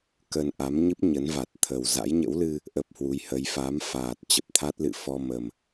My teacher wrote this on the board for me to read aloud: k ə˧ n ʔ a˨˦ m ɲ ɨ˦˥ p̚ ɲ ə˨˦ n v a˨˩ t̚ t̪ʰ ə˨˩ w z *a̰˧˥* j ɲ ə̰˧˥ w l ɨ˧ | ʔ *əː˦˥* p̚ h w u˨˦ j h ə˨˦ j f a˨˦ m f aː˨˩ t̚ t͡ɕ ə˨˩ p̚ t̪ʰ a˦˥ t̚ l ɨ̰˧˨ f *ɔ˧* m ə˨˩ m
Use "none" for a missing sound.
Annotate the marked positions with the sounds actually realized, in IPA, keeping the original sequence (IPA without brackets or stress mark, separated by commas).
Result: a̰˧˥, ə˦˥, ɔ˧